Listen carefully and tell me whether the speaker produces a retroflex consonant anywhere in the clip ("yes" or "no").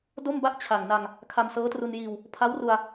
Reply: no